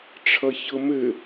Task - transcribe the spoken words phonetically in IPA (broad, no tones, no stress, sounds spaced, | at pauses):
ʈ͡ʂʰ ʌ ç ɤ m ɘ